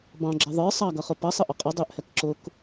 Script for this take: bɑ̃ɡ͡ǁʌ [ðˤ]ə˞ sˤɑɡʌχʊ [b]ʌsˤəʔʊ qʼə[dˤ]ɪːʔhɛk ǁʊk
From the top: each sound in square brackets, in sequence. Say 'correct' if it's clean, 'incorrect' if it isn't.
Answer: correct, incorrect, correct

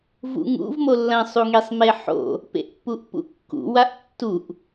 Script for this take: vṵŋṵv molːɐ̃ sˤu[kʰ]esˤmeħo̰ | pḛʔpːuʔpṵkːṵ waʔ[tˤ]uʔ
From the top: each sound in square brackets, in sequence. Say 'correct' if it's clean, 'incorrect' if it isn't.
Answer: incorrect, incorrect

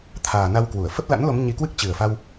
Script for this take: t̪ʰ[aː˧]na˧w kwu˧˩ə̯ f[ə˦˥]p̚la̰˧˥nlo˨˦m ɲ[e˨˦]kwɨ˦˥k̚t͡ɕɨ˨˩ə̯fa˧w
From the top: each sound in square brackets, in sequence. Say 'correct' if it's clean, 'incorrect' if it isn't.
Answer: incorrect, correct, incorrect

